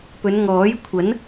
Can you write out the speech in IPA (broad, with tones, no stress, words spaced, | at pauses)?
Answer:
pɵ˨˧nŋɔː˨˥jkʷʰɐ˨˥n